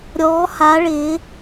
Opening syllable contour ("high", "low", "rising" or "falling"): rising